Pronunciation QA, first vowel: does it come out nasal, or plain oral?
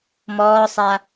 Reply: oral